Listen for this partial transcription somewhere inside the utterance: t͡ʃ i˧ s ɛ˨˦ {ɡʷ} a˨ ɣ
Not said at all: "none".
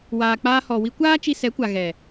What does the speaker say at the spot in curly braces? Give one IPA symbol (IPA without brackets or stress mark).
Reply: kʷ